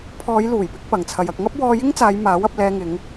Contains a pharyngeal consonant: no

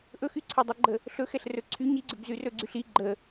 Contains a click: yes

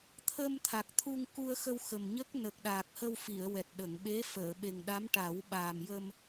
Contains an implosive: yes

